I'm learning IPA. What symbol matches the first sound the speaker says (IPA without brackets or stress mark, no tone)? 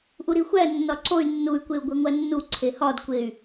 ʔ